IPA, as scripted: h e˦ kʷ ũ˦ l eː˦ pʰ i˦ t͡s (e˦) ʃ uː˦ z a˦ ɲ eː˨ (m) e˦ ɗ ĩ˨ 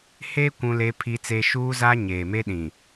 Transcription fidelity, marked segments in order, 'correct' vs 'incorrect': correct, correct

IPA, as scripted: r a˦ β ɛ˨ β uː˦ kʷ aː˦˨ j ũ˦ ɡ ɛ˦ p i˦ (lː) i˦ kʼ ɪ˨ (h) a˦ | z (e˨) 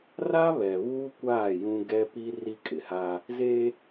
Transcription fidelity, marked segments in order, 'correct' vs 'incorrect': incorrect: r, correct, incorrect: e˦

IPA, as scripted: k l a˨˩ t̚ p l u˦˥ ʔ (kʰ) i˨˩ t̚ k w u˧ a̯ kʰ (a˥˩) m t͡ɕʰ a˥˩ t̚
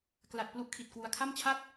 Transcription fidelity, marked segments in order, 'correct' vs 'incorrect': correct, correct

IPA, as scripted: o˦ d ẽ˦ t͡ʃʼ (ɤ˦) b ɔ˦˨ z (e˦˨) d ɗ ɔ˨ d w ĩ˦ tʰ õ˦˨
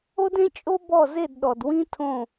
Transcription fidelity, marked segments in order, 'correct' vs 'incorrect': incorrect: o˦, correct

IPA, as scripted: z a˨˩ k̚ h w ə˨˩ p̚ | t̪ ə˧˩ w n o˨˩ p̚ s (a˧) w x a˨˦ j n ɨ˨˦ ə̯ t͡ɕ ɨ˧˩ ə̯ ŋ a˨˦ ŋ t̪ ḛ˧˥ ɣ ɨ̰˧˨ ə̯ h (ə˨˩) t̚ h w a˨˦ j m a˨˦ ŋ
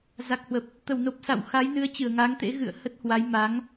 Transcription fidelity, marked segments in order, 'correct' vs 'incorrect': incorrect: a̰˧˨, incorrect: ə˦˥

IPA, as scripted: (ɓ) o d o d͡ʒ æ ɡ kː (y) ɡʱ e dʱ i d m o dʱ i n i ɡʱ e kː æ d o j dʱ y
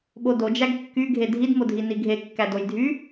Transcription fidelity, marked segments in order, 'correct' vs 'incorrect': correct, correct

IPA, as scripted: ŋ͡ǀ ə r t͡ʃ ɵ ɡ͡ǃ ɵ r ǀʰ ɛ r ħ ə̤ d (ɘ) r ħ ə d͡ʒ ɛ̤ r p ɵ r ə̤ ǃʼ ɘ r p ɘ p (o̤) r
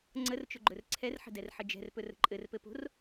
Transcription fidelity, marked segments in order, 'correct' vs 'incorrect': incorrect: ɛ, correct

